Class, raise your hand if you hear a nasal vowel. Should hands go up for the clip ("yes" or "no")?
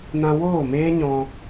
yes